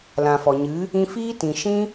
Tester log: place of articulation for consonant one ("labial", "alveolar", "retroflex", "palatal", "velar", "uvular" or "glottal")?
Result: alveolar